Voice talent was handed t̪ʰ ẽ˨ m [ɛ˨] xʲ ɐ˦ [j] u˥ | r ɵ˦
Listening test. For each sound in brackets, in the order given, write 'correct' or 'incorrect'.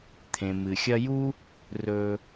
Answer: incorrect: ɨ˨, correct

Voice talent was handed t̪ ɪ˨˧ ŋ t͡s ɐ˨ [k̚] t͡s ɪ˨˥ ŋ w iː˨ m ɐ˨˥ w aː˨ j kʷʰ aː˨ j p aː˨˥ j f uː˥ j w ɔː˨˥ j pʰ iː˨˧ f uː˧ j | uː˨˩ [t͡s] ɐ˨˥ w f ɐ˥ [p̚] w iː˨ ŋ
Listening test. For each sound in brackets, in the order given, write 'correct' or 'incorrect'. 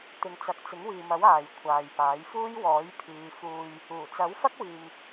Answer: correct, correct, incorrect: k̚

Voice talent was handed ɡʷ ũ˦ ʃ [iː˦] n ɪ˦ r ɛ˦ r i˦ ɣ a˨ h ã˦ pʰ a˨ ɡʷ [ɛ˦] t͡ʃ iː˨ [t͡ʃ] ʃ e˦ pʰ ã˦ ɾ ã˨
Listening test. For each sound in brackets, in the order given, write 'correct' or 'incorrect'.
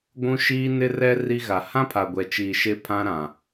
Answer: correct, incorrect: ɛ˨, incorrect: none

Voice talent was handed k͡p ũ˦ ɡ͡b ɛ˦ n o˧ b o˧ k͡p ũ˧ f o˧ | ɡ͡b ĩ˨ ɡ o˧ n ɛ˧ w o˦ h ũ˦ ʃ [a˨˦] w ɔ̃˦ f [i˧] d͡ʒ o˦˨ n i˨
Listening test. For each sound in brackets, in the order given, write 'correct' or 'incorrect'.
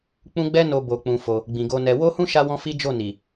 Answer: incorrect: a˦, incorrect: i˦

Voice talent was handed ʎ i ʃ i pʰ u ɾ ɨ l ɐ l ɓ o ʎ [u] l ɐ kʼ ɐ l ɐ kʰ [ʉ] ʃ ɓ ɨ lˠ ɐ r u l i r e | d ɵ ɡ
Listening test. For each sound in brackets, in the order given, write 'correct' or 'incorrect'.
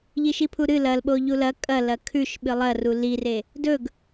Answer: correct, correct

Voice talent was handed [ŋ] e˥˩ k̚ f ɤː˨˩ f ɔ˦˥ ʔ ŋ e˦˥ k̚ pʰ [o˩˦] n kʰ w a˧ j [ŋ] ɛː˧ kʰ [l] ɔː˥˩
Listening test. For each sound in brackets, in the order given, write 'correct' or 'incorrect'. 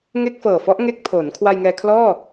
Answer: correct, correct, correct, correct

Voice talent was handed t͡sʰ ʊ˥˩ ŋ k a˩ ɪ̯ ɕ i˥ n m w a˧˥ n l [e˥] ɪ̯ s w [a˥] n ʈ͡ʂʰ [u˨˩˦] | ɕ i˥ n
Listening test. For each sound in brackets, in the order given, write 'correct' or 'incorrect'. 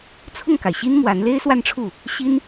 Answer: correct, incorrect: a˥˧, incorrect: u˥˩

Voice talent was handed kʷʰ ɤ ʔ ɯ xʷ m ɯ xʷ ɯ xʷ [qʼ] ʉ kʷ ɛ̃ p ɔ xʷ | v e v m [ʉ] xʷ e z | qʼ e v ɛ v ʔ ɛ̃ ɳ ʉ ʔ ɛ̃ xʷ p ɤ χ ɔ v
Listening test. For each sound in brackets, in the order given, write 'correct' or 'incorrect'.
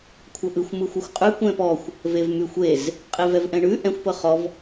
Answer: correct, correct

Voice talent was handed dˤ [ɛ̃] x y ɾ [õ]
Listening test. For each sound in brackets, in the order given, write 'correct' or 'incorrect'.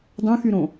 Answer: incorrect: œ̃, correct

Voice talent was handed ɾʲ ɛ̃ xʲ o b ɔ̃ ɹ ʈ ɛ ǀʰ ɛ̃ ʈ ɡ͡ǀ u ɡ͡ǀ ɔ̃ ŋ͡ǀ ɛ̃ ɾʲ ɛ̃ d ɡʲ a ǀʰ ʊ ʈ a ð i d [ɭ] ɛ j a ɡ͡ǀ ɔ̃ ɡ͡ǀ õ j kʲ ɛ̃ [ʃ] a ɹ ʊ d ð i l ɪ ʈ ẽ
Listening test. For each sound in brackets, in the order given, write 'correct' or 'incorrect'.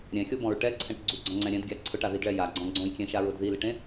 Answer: correct, correct

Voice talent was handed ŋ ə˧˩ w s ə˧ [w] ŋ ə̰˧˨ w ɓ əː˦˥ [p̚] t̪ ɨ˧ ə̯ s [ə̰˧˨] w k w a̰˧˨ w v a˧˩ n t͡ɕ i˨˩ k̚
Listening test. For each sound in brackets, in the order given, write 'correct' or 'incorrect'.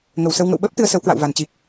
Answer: correct, correct, incorrect: ə˨˦

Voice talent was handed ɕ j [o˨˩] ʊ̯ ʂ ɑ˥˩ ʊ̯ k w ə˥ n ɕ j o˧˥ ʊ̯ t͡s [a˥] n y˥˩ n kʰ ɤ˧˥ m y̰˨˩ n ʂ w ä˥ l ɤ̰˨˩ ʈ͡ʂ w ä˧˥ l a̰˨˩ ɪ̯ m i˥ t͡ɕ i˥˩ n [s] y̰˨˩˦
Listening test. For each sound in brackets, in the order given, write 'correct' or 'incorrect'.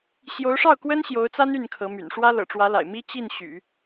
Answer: incorrect: o˧˥, correct, incorrect: ɕ

